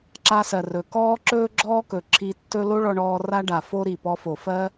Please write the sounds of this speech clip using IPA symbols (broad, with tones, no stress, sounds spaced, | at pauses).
ǁ a˧ s ɜ˩ r ɵ˩ k ɔː˥ ǁ ɵː˥ ɡ͡ǁ ɔː˥ k ɵ˩ ǁʰ i˧ tː ɵ˥ l o˥ ɭ ɔ˧ ɳ ɔː˧ r a˥ ɖ a˩ f o˥ ɾ i˩ p ɔ˧ f o˩ f ɜ˥